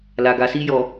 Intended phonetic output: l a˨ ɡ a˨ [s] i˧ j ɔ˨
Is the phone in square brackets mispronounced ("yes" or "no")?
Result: no